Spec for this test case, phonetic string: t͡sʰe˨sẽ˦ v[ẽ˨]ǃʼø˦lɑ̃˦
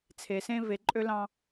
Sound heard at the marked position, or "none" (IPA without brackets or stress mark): e˨